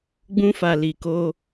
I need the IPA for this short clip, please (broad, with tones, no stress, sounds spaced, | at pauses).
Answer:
ɡ͡b ũ˧ f a˨ l i˨ k o˧